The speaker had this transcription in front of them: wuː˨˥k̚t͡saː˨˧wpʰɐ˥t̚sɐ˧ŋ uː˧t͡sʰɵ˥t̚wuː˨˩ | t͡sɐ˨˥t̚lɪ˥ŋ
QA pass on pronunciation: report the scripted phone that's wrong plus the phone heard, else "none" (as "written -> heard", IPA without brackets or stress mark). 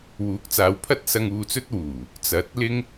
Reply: t͡sʰ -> t͡s